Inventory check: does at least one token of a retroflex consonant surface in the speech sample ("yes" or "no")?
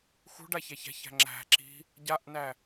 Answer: yes